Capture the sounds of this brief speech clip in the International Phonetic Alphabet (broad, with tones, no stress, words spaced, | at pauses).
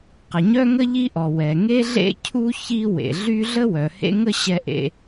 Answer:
qə˩ɲœ˥ŋə˥ ʎi˥ʔɔ˩ wɛ˩ ŋe˥ɮḛ˥cʰu˥ çi˥ wḛ˩ ɮy˥ ɮə˥wœ˩ hḛ˥ŋə˥ ɕɛ˥ʔḛ˥